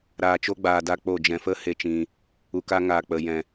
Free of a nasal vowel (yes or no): no